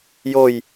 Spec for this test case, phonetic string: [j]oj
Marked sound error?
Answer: no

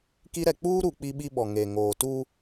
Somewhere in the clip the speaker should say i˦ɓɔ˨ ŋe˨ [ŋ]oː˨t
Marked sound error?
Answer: no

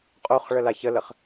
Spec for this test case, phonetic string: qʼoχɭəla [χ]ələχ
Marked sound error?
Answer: yes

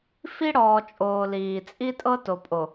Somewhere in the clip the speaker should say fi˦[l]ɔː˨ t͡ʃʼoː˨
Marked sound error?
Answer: yes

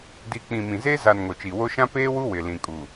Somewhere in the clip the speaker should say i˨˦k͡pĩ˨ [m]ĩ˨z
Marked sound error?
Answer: no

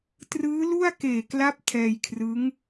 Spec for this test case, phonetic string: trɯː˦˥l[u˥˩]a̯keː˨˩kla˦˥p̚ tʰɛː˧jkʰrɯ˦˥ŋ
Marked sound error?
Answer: no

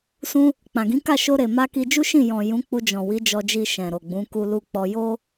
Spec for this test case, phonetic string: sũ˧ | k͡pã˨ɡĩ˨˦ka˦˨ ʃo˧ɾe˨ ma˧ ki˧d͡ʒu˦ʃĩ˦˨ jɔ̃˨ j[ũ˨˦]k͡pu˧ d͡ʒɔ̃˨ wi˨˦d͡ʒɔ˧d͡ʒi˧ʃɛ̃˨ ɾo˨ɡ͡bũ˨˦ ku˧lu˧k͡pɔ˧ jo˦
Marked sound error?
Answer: no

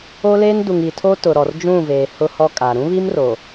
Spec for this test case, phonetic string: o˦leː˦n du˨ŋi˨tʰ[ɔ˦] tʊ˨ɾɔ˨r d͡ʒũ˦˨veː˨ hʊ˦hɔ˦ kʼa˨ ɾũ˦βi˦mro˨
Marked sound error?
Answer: yes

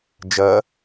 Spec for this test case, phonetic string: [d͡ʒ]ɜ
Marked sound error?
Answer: no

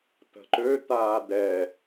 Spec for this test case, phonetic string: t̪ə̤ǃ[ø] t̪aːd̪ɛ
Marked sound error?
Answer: no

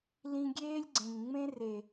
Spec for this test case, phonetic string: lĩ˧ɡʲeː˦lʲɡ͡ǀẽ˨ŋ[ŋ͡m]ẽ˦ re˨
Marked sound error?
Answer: no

